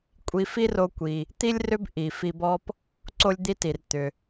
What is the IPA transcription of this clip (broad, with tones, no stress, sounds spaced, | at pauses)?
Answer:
kʷʼ i˧ f i˥ r o˧ kʷ i˩ | t̪ i˥ lʲ r ʏ˥ b ʔ i˩ f i˧ b ɔ˥ p | ǀ o˥ lʲ d̪ i˥ t i˩ r t̪ ʏ˩